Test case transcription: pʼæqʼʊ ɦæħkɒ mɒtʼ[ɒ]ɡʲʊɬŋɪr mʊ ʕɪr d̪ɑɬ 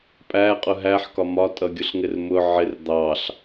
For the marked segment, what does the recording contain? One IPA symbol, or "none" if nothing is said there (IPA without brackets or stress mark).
ʌ